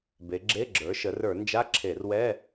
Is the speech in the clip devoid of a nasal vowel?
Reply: yes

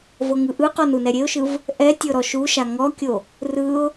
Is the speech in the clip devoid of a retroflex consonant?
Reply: yes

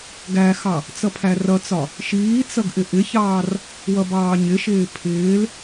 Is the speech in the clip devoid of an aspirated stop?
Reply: no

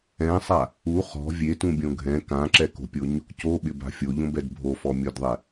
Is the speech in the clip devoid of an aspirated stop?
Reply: yes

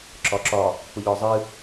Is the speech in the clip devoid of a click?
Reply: no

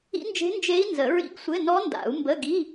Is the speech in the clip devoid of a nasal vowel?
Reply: yes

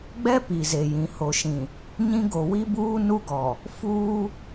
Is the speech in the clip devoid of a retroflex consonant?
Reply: yes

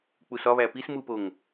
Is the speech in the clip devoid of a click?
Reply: yes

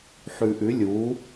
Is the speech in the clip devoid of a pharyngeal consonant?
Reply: no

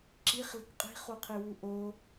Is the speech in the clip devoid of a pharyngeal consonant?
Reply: yes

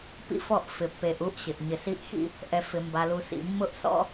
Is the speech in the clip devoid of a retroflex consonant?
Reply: yes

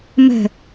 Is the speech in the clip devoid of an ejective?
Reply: yes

